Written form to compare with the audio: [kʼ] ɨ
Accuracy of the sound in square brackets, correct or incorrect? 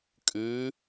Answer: correct